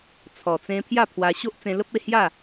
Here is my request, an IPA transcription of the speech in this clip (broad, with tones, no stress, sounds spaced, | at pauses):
t͡sʰ ɔ˨˩ t͡s ẽ˧ pʰ j a˥˧ pʰ w a˧ ɕ o˦ ʔ t͡s ẽ˧ l ə˦ p̚ e˥˧ h j a˥˧